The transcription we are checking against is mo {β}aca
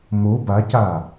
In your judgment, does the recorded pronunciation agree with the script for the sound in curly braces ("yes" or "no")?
no